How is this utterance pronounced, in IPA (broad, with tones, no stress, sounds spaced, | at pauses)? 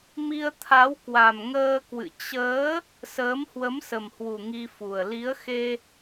m i˧ ə̯ t̪ʰ a˨˦ w k w a˨˩ m ŋ əː˧ k w ɨ̰˧˨ t͡ɕ əː˨˦ | s əː˨˦ m h w ə˨˦ m s ə˨˩ m h w u˨˩ ŋ i˧ f u˨˩ ə̯ l i˨˦ ə̯ x e˧